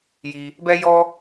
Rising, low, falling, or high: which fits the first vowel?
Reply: low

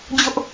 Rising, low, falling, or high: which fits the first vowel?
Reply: high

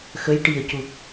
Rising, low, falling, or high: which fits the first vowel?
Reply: rising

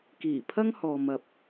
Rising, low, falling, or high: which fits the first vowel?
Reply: low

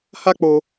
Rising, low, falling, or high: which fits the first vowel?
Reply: high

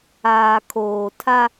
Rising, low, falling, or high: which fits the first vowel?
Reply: low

